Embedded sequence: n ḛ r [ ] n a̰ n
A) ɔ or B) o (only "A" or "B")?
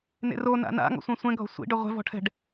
B